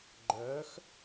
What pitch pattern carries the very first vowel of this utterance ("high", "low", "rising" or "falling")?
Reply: rising